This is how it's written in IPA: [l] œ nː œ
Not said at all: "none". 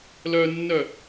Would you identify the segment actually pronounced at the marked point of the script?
l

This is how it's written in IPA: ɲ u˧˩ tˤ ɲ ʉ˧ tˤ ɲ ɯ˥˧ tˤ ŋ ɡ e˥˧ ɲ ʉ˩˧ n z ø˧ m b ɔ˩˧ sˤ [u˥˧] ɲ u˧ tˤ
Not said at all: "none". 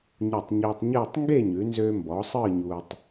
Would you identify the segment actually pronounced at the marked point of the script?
ɯ˥˧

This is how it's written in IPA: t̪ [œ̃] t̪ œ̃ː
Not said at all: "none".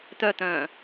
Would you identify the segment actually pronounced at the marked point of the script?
œ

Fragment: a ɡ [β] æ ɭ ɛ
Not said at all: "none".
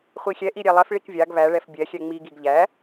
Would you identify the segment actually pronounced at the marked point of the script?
β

